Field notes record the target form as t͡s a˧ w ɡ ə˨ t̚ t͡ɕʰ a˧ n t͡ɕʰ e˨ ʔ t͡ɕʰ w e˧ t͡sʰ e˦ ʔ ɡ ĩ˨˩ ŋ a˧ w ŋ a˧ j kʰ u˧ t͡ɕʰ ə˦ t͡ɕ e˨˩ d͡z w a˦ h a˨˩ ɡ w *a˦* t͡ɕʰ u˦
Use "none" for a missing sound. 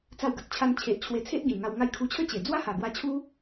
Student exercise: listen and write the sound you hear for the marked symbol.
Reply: a˧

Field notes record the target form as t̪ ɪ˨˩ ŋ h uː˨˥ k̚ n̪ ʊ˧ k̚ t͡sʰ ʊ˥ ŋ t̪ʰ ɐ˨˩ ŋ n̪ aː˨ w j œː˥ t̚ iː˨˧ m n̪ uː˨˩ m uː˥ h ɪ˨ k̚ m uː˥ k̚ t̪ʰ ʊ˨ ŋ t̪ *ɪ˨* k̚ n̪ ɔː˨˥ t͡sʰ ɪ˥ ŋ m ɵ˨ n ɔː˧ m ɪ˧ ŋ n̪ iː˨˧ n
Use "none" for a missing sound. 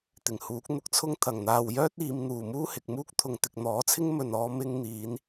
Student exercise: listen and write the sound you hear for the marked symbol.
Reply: ɪ˨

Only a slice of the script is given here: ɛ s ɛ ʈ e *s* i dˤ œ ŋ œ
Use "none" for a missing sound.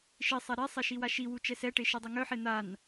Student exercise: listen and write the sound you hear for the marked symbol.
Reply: ʃ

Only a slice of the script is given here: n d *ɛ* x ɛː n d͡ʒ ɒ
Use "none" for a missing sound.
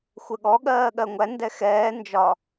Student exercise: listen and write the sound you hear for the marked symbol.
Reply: ɛ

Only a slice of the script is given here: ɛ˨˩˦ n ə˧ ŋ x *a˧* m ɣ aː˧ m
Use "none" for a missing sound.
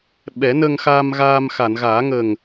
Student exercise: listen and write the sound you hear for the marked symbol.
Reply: a˧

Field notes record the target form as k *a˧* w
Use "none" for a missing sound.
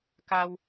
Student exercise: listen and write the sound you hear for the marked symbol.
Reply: a˧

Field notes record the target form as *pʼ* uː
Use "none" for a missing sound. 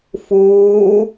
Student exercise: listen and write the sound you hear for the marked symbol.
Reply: f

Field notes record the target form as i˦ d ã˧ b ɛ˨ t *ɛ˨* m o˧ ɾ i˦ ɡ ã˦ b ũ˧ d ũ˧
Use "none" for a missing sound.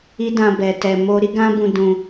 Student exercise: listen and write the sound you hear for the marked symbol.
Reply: ɛ˨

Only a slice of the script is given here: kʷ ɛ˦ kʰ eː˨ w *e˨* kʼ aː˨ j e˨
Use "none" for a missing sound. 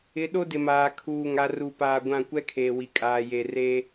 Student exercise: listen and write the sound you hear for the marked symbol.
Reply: i˨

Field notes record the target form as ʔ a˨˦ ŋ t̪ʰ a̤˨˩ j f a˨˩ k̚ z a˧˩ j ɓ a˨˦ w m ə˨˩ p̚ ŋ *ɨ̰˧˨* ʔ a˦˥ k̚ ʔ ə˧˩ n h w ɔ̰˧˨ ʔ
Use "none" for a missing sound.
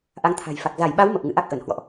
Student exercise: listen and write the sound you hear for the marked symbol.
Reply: ɨ̰˧˨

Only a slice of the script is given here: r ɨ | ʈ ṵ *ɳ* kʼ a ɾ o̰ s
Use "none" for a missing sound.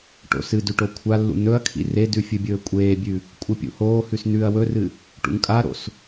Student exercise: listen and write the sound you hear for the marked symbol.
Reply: ŋ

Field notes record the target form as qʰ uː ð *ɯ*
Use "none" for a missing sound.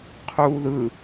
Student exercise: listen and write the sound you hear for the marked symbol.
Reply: ɯ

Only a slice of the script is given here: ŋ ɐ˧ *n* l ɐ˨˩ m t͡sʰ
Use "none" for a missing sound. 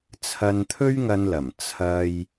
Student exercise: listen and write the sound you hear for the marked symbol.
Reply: n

